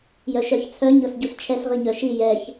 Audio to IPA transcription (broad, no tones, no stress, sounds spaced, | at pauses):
j œ ʃ œ ç t͡sʰ œ ɲ ɤ s ɟ u s t͡ʃʰ ɛ s ʁ i ɲ œ ʃ i j ɛ ç